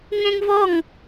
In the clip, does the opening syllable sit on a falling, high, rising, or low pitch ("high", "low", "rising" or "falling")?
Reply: high